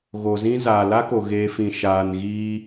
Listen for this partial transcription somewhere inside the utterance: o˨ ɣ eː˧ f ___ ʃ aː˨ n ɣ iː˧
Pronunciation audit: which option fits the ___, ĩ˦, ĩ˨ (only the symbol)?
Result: ĩ˨